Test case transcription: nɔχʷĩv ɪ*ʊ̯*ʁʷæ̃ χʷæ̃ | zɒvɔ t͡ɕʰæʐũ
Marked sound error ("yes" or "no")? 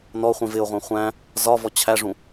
no